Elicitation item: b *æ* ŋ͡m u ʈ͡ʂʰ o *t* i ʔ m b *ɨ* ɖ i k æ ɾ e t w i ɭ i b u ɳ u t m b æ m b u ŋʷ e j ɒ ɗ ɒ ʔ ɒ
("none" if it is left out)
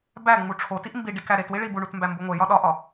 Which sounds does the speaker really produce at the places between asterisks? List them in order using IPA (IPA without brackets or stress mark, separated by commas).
æ, t, i